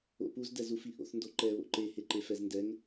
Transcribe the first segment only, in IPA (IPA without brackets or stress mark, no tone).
o̰